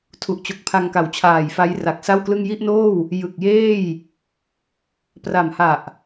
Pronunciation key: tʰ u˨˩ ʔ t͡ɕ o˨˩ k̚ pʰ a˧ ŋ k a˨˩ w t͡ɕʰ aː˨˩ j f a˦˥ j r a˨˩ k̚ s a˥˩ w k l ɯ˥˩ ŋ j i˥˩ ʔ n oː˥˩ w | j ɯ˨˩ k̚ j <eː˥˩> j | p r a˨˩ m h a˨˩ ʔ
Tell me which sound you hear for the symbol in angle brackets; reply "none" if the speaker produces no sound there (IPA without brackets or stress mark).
eː˥˩